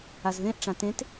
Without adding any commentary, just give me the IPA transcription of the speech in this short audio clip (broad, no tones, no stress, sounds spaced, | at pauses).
a z ð ẽ ʔ ʈ͡ʂ ã t ẽ t